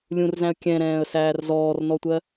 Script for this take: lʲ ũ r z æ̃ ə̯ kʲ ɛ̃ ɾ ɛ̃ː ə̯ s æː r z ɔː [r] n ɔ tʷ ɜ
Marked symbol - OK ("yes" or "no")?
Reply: yes